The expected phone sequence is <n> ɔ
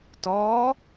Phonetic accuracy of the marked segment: incorrect: t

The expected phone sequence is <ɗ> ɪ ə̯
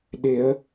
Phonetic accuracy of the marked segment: correct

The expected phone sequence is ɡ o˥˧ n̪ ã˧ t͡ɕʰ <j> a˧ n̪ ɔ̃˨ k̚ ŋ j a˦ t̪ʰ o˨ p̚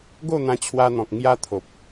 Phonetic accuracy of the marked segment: incorrect: w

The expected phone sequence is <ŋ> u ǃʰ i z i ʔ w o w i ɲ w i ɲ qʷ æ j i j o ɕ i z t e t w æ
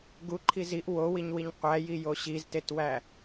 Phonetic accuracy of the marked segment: incorrect: ɡ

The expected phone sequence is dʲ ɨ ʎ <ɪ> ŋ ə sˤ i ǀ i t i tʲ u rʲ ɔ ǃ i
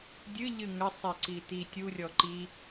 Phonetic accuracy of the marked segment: incorrect: ɨ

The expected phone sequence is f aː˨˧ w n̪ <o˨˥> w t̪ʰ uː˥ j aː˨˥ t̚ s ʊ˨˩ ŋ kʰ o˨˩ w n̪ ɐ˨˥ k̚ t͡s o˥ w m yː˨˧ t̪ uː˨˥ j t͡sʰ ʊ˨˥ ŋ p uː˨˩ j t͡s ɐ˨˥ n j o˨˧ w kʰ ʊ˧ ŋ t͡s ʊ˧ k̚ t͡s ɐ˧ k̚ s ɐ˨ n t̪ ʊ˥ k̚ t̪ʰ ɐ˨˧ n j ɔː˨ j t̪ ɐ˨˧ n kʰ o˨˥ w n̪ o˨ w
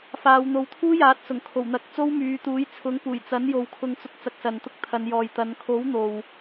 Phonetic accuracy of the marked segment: incorrect: o˧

